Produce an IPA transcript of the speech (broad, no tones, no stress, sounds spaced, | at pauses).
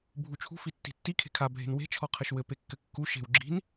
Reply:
bʱ u t͡ʃʰ ṳ f i tː i̤ tː i kʰ e̤ kʰ a bʱ e̤ n w e̤ t͡ʃʰ ɔ qʰ ɘ ʃ w ɘ p e kː ɘ kː u ʃ e̤ w ɡ͡ǁ i̤ n